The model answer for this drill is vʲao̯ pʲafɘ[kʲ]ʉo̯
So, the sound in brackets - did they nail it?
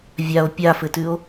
no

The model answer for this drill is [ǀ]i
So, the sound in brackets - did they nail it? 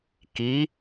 no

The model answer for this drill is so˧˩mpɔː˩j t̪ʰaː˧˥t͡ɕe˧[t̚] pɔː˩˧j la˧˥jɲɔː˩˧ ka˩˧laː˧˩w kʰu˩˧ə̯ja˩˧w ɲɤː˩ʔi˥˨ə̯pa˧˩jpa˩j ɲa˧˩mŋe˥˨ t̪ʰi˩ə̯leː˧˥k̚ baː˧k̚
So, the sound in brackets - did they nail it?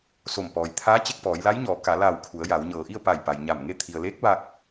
no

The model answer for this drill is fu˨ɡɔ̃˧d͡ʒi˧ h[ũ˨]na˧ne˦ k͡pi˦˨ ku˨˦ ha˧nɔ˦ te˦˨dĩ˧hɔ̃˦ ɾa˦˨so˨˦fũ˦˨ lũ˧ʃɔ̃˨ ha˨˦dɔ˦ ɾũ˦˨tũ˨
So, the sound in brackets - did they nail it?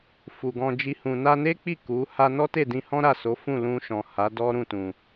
yes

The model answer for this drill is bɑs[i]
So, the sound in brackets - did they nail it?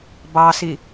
yes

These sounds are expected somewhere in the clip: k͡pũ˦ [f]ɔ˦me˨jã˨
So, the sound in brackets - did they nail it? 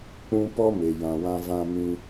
no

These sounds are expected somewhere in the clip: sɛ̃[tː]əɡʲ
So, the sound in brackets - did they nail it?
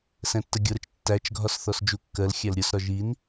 yes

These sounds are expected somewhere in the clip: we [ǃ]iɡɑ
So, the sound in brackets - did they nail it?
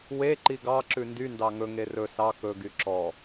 yes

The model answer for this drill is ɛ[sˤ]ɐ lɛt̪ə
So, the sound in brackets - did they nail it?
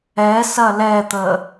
no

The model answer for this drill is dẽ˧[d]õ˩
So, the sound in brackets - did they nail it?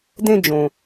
no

